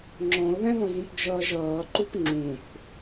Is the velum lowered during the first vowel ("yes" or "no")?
yes